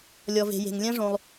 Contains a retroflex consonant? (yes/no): yes